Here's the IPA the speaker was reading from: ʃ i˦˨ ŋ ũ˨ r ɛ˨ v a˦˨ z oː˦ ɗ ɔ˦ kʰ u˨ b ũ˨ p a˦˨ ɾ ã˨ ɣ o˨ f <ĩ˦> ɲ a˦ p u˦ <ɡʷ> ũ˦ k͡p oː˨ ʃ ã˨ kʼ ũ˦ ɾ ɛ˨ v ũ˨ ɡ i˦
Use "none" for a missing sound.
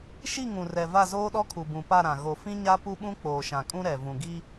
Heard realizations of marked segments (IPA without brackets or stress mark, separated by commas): ĩ˦, ɓ